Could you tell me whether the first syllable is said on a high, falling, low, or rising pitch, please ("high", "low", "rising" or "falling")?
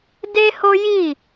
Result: high